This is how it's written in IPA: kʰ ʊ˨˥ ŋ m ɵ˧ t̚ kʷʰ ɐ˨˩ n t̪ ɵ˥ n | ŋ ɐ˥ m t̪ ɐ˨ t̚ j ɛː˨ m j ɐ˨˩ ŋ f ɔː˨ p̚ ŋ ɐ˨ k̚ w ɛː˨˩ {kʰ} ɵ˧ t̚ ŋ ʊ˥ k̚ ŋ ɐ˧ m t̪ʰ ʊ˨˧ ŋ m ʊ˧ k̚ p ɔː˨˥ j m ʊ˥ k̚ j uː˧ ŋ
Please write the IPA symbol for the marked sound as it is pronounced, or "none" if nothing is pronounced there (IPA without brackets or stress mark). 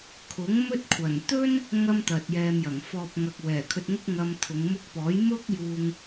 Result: kʰ